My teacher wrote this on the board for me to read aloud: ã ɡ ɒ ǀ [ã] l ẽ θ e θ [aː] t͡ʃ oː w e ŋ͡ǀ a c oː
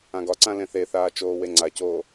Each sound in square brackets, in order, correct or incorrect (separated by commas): correct, correct